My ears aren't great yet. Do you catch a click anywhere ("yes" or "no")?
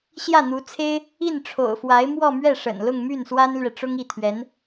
no